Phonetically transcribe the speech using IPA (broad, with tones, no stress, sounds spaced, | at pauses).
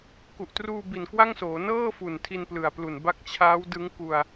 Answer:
k u˨˩ ʔ t r uː˧ b i˨˩ n k w a˥˩ ŋ s oː˩˦ n ɤː˥˩ f u˨˩ n tʰ i˧ n p l ɯ˨˩ a̯ p l u˨˩ n b a˦˥ k̚ t͡ɕʰ aː˦˥ w d ɯ˦˥ ŋ k u˧ a̯